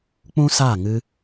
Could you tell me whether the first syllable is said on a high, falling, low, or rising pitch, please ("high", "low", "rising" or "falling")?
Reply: high